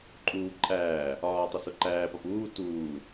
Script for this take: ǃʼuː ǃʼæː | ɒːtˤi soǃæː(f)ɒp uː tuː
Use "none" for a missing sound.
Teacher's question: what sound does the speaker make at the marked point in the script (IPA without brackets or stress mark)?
p